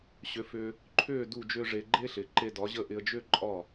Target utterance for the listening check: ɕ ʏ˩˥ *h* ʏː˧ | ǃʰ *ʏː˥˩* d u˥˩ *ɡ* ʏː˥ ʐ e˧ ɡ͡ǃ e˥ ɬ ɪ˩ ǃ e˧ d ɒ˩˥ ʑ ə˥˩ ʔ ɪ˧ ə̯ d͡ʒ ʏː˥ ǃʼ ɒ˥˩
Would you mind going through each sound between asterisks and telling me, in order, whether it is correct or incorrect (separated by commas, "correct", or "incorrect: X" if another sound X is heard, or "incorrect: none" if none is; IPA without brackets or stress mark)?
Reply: incorrect: f, correct, incorrect: d͡ʒ